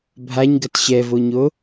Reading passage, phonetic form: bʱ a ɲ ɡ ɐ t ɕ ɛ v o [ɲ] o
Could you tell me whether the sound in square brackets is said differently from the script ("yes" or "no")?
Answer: no